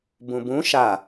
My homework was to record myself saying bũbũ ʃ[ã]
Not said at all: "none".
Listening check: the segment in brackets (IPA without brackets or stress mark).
a